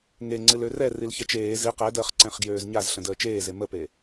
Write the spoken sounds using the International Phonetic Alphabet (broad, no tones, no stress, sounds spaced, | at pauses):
ŋ e ŋ͡ǀ ɨ l ø r ɛ r i l ç ɛ t͡ʃ eː z i q ɛ d əː χ ǀ ɛ̃ χ ɡ j øː z ɲ a z ɬ ə̃ d əː t͡ʃ eː z e m ə p e